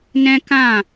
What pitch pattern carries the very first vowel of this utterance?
high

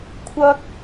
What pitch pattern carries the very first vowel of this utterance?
high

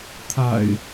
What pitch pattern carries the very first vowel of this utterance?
low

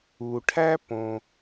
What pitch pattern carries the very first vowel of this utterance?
low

